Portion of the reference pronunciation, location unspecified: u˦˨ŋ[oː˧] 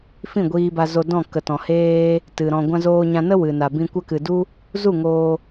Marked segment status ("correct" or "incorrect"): correct